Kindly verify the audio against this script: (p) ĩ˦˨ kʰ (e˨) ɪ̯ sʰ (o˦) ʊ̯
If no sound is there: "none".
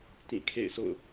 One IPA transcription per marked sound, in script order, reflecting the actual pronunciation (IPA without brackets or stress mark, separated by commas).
t, ḛ˦˨, o̰˦˨